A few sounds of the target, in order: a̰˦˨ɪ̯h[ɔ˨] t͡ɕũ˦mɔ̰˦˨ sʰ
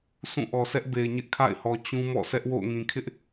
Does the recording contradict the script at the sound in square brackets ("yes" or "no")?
no